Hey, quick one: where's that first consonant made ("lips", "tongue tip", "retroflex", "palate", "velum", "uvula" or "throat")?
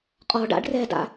uvula